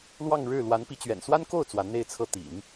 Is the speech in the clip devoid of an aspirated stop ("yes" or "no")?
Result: no